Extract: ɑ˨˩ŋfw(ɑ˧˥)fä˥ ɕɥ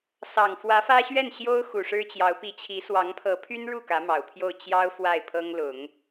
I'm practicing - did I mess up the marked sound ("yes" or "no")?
yes